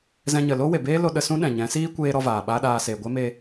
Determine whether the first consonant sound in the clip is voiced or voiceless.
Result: voiced